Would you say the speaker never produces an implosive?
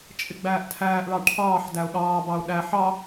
no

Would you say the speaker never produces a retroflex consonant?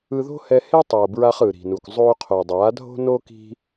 yes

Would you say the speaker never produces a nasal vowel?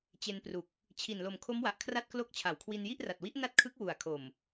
yes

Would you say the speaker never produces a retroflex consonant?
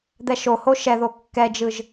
yes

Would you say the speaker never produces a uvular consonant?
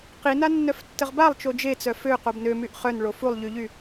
no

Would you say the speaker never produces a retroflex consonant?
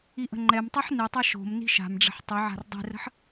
no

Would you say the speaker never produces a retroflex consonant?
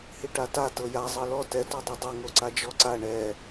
no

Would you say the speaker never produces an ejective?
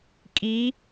no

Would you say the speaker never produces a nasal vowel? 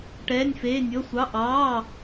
yes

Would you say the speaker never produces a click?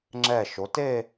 no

